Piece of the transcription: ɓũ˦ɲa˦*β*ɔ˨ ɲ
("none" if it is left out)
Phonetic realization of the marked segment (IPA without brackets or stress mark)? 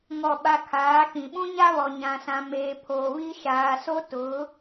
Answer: β